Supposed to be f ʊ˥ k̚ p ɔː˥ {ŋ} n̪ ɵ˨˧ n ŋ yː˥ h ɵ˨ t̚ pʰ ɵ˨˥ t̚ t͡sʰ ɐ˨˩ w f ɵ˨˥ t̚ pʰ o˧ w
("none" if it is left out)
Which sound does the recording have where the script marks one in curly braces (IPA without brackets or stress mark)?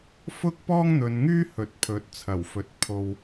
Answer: ŋ